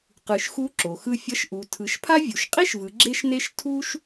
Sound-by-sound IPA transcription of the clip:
qɯ˩ʃxu˧˥ ǁo˩xɯ˧ fʲʌ˧˥ʃʔu˩˧ tʰɯ˩˧ʃpʰa˥ vʲu˩ʃqʼi˥ʃvɯ˩˧ ɡ͡ǁe˥ʃne˥ʃ tʰu˥ʃ

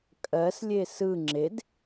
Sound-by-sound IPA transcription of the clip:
kʼɜslʲe sɯ ŋ͡ǁed

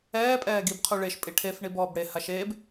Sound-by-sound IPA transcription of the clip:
ɛːpʼɛː ɡibqʰu ɭeʃpʼi ʈʰef ɳibɔːbɽe haʃeb

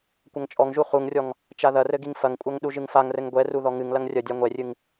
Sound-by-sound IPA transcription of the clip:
kʷɐŋt͡ʃʼɔŋʒu χuŋrʲɔŋ | t͡ʃaðɐrɘ ɡiŋfɐŋkʷʼɐŋ ɗuʒɨŋfaŋrɘŋ ɡʷɛru ðɔŋɨŋlɐŋ rʲɐdʲa ŋʷɛrʲɨŋ

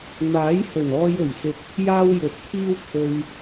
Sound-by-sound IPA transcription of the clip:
n̪aː˨˥jhɵ˨˩nɔː˧j ɵ˨˩ɥsɪ˨k̚ | jaː˥wjɵ˨˥t̚kʰiː˥w kʰɵ˧ɥ

